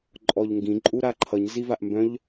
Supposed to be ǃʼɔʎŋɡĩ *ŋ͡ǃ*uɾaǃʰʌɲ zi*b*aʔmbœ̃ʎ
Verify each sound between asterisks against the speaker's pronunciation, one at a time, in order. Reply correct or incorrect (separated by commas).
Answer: incorrect, incorrect